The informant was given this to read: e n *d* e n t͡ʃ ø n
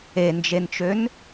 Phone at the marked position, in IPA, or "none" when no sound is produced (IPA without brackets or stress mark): d͡ʒ